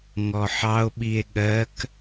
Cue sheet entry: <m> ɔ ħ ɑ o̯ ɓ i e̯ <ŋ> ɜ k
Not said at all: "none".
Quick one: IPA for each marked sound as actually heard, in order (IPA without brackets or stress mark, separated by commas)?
ŋ, ɠ